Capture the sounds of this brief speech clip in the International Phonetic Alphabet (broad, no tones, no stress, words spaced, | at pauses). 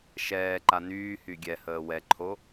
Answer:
ʃɛːǃa nyːhy ɡʲɛhəː wɛǃʰo